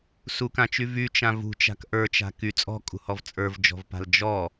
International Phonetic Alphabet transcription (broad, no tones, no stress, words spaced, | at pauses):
sukãt͡ʃy vyt͡ʃã vṳt͡ʃa̤k ʔə˞t͡ʃa̤ ky t͡sʼɔ̤kʼṳhɔv t͡sʼə˞vd͡ʒɔ̤vpa̤l d͡ʒɔ